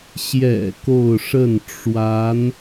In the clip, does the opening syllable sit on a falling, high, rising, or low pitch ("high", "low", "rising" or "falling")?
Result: low